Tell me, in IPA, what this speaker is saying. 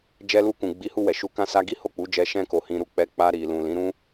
d͡ʒ ɛ˧ l u˧ k ũ˨ ɡ͡b i˨˦ h u˧ w ɛ˨ ʃ u˧ k ã˧ s a˧ ɡ i˦ h o˦˨ k͡p u˨˦ d͡ʒ ɛ˧ ʃ ɛ̃˦ k o˧ h ĩ˧ ɾ u˦ k͡p ɛ˧ k͡p a˧ ɾ i˨ l ũ˨ l ĩ˨˦ ɾ ũ˦

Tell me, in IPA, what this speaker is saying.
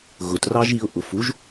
ɣ ʊ t r ɑ ʒ i ʊ̯ ʔ ʊ f u ʒ

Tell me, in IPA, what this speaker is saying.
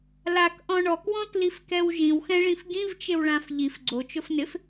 l a k ʔ ɔ̃ ɳ ɔ k w ɔ̃ t l i f k ɛ w ʒ ĩ w x ɛ̃ ɭ ĩ f ɡ ĩ v t͡ʃ ɪ w ɭ ã f ʎ i f ɡ͡ǀ o t͡ʃ ʊ f n ɪ f

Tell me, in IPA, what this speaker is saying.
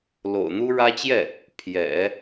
l o̰˨˩ ʊ̯ n̪ u˥ ɻ ä˥ t͡ɕ j ɛ˥˩ | pʰ j ɛ̰˨˩˦

